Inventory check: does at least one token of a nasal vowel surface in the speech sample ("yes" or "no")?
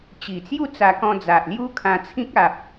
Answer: yes